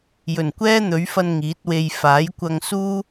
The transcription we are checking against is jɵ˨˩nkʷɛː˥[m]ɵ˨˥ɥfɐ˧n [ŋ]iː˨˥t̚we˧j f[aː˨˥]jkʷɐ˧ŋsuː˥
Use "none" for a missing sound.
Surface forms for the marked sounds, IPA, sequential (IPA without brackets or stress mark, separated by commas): n̪, ŋ, aː˨˥